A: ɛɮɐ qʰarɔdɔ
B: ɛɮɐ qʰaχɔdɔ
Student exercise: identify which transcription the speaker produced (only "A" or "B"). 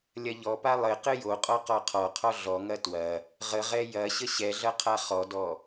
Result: B